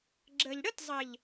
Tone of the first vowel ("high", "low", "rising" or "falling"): low